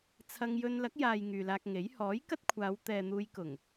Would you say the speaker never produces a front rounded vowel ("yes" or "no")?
no